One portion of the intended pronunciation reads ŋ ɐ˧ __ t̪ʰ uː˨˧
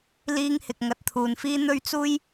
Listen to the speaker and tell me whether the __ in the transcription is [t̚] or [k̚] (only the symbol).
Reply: t̚